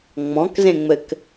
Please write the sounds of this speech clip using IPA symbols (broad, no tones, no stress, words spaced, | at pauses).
ŋ͡mɔ̃kzẽŋ͡mɘk